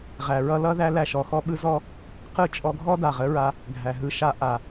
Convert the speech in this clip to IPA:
ʁ æ˨ ɹ ʌ˧ l ʌ˦ ð æ˦ l æ˧ ʃ ɔ˧ x ɔ˦ ɓ ɯ˧ z ɔ˧ | q ɯ˦˨ t͡ʃʼ ɔ˧ ɡʱ ɔ˦ d a˨ ʁ ə˨˦ ɹ a˧ | ɡʱ æ˨ ɦ ɯ˧ ʃ a˧ ʔ a˨

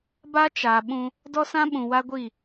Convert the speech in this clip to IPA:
b a˦ t͡ʃ a˨ ɓ ũ˦ | d ɔ˦ s ã˦ ɓ ũ˨ w a˦ ɡʷ i˦˨

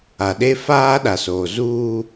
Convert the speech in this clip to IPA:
a˨ ɗ e˦ f aː˦ ɗ a˨ s oː˨ z uː˦

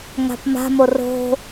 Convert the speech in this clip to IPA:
ŋ a̤ p m a̤ m o r o̤

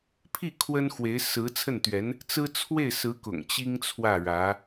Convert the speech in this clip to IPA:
pʰ i˥˩ kʰ w ə˥ n x w e˧˥ ɪ̯ s ɹ̩˧˥ t͡sʰ ə˥˩ n t̪ ɥ ɛ˧˥ n | t͡s ɹ̩˥ t͡sʰ w e˥˩ ɪ̯ s ɹ̩˧˥ k ʊ̰˨˩ ŋ t͡ɕ i˥ ŋ t͡sʰ w ä˥˩ ɻ ä˧˥

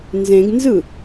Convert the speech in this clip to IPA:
n z ẽ ɡ n z ɯ

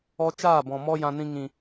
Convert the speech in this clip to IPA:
ɔ˦ t͡ʃ aː˦˨ b ɔ̃˨ m ɔ˦ j ã˧ n ĩ˧ ŋ ĩ˨

